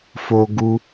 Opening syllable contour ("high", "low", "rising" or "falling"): high